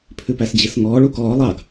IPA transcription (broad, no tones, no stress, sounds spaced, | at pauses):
pʰ ʉ p æ s d͡ʑ i s ŋ ɔː ɭ u k ɔː lˠ ɑ ɡ